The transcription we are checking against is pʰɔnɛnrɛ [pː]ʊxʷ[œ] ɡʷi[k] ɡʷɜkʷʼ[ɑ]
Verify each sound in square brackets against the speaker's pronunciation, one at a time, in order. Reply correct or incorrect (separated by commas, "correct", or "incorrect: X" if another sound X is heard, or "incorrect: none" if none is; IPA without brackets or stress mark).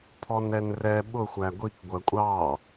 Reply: incorrect: ɓ, incorrect: æ, correct, correct